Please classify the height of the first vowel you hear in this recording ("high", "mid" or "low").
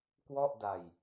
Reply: mid